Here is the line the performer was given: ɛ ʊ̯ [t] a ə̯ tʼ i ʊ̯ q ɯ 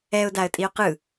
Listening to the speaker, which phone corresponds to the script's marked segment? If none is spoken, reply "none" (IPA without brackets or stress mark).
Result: d